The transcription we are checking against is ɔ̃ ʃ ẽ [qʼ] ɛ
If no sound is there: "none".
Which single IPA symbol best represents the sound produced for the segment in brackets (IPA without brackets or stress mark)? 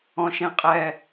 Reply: qʼ